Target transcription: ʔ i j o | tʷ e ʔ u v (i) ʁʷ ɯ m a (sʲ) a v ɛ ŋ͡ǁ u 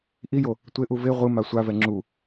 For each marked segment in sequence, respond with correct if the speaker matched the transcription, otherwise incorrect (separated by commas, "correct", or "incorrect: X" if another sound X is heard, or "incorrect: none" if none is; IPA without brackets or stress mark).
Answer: incorrect: e, incorrect: sʷ